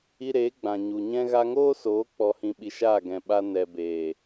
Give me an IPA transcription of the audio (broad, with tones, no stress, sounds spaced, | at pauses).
i˧ ɾ eː˨˦ ɡ͡b ã˨ ɲ u˨ ɲ ɛ̃˦ ɣ a˧ ŋ oː˦ s oː˨˦ k͡p ɔ˧ h ĩ˧ ɓ i˧ ʃ aː˦˨ ɡ ɛ̃˨ ɓ a˧ n ɛ˨ b eː˨